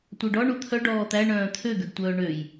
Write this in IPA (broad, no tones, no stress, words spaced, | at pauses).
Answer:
tʷœɖɔ ɳut̪ʰœ ɖɔːt̪æɳœ̃ː t̪ʰøɡøɡtʷœː ɳøj